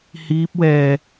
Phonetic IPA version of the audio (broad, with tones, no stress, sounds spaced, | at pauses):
h iː˦˥ p̚ w ɛː˧